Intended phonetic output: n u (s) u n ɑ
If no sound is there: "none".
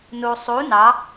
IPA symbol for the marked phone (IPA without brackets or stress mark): sˤ